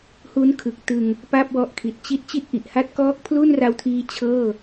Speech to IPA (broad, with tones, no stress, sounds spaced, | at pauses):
h u˦˥ n kʰ ɯ˨˩ k̚ t ɯ˧ ŋ | p a˥˩ p̚ w ɔ˦˥ ʔ kʰ i˨˩ t̚ t͡ɕ i˦˥ t̚ t͡ɕ i˥˩ t̚ ʔ i˨˩ ʔ h a˥˩ t̚ k ɔː˦˥ k̚ pʰ l u˥˩ n r a˧ w tʰ iː˦˥ t͡ɕʰ ɤː˥˩